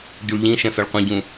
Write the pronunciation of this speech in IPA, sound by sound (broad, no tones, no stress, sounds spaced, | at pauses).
ɟ u ɭ ʎ ĩ ʃ ɛ̃ f ɛ ɭ qʷ ĩ ɟ ũ